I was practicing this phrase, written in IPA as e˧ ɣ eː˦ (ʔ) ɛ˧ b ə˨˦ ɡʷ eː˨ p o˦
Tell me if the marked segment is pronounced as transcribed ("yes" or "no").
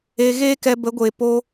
no